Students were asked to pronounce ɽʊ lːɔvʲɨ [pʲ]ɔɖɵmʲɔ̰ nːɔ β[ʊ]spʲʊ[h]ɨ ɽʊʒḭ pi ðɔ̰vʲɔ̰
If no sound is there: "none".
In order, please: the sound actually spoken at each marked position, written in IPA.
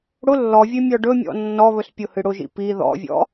mʲ, ɵ, h

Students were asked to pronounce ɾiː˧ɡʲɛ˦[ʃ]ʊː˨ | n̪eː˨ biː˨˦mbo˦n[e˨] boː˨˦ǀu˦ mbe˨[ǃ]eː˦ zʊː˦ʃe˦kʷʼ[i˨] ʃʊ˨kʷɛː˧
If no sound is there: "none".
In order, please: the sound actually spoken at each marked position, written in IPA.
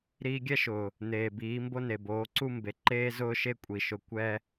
ʃ, e˨, ǃ, i˨

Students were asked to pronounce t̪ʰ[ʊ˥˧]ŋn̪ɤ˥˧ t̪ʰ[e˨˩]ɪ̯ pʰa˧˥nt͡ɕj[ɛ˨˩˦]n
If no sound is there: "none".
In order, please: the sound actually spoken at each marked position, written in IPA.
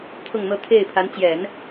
ʊ˥˧, e˥˩, ɛ˨˩˦

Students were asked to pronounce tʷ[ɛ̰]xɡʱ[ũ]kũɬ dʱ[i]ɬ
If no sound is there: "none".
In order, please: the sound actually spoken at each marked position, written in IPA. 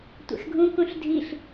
ɛ̰, ũ, i

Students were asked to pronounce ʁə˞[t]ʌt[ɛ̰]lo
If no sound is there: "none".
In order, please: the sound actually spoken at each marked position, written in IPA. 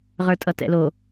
tʼ, ɛ̰

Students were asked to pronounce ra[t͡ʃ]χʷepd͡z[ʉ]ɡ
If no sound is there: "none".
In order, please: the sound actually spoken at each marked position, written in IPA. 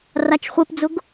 t͡ʃ, ʊ

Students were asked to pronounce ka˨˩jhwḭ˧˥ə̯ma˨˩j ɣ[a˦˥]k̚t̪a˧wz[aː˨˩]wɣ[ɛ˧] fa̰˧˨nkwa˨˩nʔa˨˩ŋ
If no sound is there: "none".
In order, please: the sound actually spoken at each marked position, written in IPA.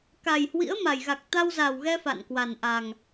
a˨˩, aː˨˩, ɛ˧

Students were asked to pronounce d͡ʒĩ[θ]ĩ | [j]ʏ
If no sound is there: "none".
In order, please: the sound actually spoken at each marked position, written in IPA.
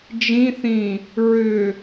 θ, ɹ

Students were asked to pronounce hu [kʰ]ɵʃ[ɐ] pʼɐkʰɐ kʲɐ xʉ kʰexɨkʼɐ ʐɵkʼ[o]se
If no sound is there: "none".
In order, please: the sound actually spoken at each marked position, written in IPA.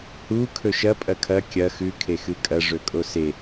kʰ, ɐ, o

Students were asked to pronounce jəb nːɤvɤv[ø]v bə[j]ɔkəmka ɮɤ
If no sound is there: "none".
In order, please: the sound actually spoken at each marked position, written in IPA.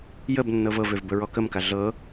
ø, ɹ

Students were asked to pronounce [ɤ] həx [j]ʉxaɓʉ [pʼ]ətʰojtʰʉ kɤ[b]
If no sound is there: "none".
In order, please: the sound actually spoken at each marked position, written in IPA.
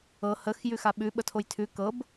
ɤ, j, ɓ, b

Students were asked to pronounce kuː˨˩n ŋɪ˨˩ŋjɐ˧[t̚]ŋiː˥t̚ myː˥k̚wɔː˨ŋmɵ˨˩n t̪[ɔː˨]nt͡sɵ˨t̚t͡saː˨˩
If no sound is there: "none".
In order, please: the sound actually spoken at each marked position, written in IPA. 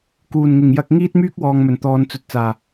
k̚, ɔː˨

